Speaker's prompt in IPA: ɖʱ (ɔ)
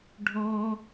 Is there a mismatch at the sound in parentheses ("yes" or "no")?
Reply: no